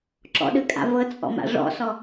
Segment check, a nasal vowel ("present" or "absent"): absent